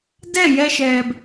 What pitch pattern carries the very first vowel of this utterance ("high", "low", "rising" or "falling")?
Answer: falling